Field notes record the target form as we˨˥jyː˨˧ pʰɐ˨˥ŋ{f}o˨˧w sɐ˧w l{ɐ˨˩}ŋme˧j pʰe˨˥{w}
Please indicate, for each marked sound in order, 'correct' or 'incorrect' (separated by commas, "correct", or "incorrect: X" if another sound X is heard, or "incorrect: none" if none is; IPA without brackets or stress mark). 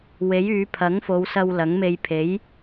correct, incorrect: ɐ˨˥, incorrect: j